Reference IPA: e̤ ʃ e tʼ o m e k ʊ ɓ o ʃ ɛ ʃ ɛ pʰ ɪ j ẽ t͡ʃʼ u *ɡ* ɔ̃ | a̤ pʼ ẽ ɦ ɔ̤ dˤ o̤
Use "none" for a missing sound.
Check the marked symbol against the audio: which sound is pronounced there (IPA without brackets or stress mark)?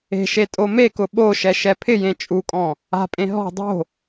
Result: kʼ